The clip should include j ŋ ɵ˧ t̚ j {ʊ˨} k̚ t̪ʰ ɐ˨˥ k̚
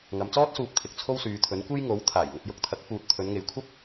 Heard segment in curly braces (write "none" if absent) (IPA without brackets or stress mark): ʊ˧